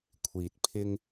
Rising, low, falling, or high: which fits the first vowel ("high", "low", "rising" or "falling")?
low